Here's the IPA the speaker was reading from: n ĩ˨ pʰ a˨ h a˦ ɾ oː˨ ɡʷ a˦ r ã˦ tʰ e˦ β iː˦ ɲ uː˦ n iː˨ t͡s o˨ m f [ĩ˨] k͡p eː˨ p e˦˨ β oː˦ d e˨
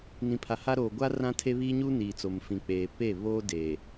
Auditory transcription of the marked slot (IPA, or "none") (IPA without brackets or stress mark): ĩ˨